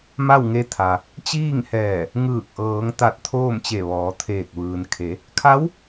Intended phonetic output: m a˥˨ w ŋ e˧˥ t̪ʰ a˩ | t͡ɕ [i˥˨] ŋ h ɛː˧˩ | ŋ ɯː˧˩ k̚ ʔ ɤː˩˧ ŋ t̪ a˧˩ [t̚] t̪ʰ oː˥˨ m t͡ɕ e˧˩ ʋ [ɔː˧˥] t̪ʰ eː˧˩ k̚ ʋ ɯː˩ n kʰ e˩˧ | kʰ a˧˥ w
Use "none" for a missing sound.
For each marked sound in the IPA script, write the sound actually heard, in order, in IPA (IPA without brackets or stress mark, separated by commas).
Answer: iː˥˨, t̚, ɔː˩˧